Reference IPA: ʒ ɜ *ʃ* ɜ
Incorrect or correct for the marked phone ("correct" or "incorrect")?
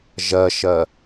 correct